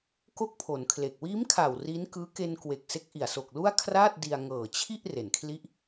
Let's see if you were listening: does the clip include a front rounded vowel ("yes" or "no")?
no